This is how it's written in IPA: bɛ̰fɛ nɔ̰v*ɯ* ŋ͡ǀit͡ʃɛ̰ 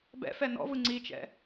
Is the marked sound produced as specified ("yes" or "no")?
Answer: yes